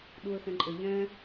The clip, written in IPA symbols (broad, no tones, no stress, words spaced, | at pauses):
ɗuə̯xɛ̃ǃʼɘ ʎɛ̃